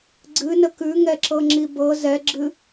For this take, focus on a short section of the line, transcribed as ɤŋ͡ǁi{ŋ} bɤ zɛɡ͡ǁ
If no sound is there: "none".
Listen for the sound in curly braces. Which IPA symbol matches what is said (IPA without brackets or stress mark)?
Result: none